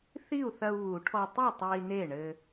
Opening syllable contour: falling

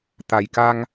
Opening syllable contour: low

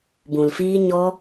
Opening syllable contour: low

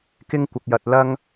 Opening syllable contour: high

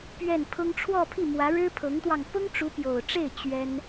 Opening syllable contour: falling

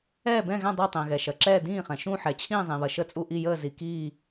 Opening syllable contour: falling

